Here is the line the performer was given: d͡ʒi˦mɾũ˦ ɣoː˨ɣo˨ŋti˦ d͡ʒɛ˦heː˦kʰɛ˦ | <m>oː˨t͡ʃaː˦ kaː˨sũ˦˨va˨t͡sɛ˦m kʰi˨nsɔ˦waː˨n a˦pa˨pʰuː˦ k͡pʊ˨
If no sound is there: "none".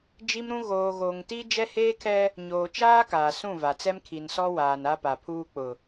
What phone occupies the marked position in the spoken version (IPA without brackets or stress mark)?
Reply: ɲ